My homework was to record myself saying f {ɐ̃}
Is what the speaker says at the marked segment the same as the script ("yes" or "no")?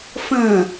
yes